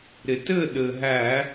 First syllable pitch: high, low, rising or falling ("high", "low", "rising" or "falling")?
low